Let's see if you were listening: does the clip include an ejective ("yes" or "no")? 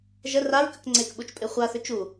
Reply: yes